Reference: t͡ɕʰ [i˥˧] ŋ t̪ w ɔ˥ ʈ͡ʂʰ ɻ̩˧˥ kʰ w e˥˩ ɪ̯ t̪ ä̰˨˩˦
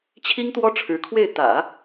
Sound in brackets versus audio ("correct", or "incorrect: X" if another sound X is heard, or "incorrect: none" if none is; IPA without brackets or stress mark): incorrect: i˥